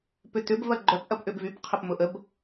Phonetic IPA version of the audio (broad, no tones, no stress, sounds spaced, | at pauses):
p ʏ t̪ ʏ b v ɐ ɡ͡ǃ œ p ʔ ɐ p ʔ ʏ b v y p qʰ ə p m ʊ ʔ ə b